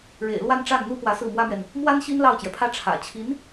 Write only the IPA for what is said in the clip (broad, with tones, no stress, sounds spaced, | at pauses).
ɻ ḛ˨˩ ɪ̯ l w a˥˧ n ʈ͡ʂ a˥˩ n n̪ u˥ p w ä˧˥ s ɹ̩˥˩ m w ä˥ m ɥ ɛ˨ n | m w a˥ n ɕ i˥ n l ɑ˥˩ ʊ̯ t͡ɕ j ɛ˩ pʰ ä˥ ʈ͡ʂʰ ä̰˨˩ t͡ɕʰ i˧˥ n